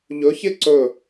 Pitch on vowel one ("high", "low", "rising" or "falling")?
rising